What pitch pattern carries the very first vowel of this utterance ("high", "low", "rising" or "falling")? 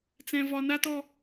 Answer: high